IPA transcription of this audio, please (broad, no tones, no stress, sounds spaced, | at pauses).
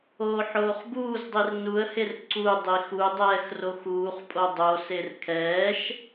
oː ħ oː χ b uː z dˤ i r n u ə̯ h e r ǀ u dˤ i x u dˤ ɛː x r o x uː χ pʼ o dˤ o s e r kʰ ɛː ʃ